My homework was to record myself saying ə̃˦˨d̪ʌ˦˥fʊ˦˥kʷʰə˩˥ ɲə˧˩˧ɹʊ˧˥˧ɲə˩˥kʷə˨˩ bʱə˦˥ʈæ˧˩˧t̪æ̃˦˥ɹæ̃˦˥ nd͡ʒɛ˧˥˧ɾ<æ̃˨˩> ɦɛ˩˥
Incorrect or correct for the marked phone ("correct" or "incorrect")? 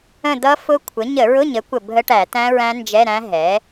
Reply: incorrect